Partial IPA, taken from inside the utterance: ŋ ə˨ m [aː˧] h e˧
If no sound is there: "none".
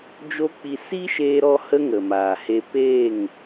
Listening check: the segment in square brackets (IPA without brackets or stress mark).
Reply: aː˨